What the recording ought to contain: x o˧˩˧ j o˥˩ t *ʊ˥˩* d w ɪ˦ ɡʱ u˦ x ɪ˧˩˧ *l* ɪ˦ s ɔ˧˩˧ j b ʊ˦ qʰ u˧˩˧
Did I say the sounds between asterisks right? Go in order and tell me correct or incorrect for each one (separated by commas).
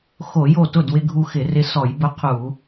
correct, incorrect